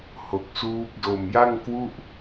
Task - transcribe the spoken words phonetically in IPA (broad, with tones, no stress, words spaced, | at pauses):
ho˨˩k̚suː˦˥p̚ do˨˩mja˥˩ŋ kwu˥˩ʔ